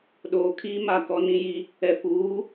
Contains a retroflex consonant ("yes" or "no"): no